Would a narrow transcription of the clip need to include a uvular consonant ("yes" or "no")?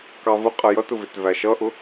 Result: yes